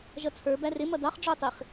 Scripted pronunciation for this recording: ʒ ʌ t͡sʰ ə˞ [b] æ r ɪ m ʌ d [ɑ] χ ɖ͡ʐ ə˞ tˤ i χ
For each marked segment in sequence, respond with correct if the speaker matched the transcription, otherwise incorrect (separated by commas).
correct, correct